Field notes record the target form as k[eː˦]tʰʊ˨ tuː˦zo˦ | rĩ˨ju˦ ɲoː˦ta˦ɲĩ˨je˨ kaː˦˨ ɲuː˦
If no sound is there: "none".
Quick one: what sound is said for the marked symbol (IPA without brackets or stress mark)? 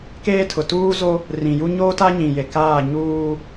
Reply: eː˦